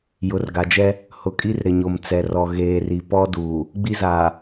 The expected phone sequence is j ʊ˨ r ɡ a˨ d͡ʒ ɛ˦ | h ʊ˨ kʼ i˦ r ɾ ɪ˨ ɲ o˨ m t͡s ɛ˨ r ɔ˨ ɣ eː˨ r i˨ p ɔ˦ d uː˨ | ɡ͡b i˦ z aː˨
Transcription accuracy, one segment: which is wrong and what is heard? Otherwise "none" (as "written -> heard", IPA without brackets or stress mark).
none